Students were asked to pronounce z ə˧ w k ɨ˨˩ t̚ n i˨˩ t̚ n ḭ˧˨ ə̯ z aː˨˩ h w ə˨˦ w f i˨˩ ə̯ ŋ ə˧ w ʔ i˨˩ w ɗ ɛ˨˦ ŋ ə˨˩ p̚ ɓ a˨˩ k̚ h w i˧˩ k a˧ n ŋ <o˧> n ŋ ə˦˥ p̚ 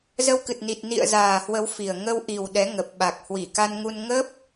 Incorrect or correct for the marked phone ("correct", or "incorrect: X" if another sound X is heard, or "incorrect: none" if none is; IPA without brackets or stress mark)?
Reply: incorrect: u˧